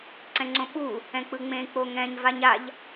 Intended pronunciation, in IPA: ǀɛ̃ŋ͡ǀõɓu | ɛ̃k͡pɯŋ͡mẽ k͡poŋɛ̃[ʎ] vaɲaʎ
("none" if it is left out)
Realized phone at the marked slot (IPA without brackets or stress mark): ɲ